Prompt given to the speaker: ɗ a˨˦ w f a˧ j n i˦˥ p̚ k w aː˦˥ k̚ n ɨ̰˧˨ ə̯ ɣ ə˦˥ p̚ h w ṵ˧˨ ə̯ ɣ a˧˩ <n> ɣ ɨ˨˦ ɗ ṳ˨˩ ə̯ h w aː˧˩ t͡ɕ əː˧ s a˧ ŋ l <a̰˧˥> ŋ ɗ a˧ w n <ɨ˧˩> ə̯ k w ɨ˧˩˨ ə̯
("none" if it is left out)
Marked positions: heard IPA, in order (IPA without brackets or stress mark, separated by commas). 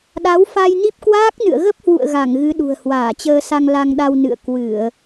ŋ, a˧, ɨ̰˧˨